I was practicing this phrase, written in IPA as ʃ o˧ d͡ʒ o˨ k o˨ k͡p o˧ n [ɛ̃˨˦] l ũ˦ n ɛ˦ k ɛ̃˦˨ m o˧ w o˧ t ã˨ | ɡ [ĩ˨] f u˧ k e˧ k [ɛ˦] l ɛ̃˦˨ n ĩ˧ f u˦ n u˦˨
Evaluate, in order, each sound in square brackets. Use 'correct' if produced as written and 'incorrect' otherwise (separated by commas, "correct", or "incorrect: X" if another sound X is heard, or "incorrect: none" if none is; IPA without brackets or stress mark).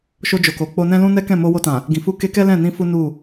incorrect: ɛ̃˦, correct, correct